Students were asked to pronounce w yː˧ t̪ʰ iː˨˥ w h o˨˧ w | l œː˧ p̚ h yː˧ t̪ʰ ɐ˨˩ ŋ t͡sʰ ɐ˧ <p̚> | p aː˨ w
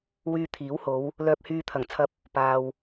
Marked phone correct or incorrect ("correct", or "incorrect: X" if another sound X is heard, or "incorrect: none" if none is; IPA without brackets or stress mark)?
correct